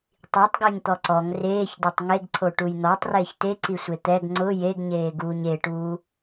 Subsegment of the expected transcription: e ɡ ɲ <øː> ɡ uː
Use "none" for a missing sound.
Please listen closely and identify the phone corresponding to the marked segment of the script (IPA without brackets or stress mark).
eː